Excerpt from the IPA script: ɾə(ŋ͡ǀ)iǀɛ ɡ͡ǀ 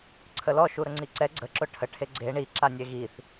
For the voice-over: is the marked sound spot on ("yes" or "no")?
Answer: yes